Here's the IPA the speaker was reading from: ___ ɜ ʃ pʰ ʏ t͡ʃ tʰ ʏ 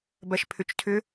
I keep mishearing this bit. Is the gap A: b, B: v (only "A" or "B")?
A